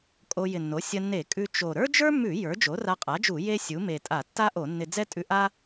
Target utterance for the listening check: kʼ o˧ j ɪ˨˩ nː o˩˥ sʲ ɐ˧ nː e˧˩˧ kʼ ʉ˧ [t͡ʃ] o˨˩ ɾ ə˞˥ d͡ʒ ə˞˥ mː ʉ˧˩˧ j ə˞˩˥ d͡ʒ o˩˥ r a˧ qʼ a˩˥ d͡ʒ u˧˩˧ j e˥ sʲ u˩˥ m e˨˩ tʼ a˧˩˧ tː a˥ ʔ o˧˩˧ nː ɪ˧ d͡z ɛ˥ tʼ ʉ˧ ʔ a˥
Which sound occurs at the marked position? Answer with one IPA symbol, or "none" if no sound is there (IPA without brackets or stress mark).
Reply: t͡ʃ